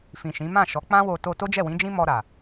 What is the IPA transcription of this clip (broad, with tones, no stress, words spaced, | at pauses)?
fĩ˨ʃĩ˨˦ mã˦˨ʃɔ˨˦ k͡pã˦wo˧ to˧ to˦d͡ʒɛ˦˨wĩ˨˦d͡ʒĩ˦ mɔ˧ɾa˨